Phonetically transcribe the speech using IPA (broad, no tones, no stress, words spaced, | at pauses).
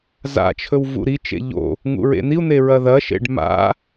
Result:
za̰t͡ʃʰɵw vṵɾit͡ʃḛ ʎo̰ | ŋṵɹḛn̪iu̯n̪e ɹɐðɐʃḛɖ ma̰